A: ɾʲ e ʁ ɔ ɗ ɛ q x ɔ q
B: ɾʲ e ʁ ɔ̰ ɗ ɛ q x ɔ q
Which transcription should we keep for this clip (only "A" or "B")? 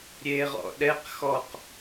B